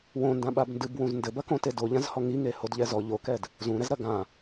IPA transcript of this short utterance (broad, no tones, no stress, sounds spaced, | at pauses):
w õ n d ã ɓ a b n d ɨ b w ũ z n d ɘ b ɐ k õ t e d o ʎ ã z h ɔ ŋ i ŋ e h o d ʎ ɛ z ɔ ʎ o k ɛ d | z ũ ɾ ɛ z ɾ ɐ ɡ ã